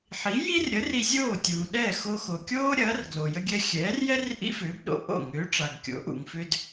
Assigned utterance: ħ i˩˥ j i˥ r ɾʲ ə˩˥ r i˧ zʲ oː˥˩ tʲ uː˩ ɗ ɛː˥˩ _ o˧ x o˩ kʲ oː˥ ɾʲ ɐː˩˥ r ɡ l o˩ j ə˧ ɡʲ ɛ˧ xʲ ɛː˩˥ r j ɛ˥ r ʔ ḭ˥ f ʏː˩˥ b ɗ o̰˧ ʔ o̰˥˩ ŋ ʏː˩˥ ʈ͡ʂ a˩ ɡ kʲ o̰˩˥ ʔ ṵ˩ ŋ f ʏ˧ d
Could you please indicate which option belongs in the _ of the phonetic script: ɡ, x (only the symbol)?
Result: x